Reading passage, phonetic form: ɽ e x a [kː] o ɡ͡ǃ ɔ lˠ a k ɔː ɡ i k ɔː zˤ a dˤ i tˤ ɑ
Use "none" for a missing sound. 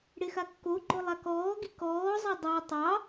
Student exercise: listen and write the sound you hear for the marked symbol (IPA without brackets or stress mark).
kː